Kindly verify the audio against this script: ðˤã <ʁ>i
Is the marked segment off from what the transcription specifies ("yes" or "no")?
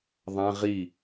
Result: no